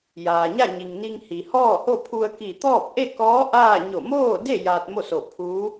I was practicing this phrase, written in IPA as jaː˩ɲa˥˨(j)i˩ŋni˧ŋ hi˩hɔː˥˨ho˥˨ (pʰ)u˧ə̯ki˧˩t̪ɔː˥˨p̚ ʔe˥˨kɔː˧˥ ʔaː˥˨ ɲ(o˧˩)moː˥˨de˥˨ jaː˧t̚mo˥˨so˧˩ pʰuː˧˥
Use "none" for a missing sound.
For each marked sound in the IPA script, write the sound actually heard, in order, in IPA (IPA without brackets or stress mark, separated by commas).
ɲ, pʰ, o˧˩